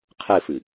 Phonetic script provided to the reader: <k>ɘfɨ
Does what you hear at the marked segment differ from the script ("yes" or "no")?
yes